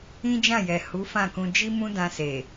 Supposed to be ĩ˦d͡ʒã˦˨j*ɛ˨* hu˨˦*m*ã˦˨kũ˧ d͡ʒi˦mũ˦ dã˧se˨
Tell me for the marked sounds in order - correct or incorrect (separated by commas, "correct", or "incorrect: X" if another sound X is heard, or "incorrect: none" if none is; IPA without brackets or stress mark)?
correct, incorrect: f